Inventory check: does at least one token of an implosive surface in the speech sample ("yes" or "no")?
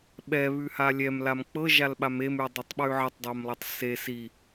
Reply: yes